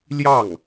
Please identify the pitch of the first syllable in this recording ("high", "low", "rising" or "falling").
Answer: falling